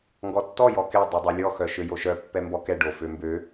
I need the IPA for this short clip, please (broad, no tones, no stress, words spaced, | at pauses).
ŋɡɔtːɔ jɔke dˤodˤœlʲɔ xœʃøjoʃœ pːɛmbɔkɛ ɖo fømbø